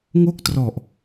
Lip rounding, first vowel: rounded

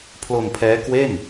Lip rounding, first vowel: rounded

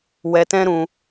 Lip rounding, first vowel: unrounded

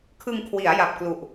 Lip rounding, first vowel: unrounded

